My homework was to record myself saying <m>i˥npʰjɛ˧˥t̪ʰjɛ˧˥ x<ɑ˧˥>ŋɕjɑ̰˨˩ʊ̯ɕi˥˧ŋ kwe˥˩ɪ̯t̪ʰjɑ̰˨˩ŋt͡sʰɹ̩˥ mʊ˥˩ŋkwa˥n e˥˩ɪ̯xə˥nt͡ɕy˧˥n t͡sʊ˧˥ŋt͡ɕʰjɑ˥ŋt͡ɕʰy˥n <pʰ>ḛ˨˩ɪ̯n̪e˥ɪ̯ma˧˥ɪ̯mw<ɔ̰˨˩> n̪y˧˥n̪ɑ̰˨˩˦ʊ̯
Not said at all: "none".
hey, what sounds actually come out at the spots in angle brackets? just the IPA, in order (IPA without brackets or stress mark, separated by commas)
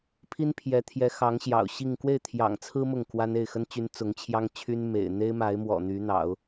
pʰ, ɑ˧˥, m, ɔ̰˨˩